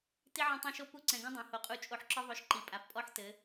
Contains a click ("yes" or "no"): yes